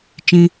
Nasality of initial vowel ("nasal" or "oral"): nasal